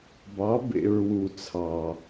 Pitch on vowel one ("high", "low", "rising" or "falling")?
rising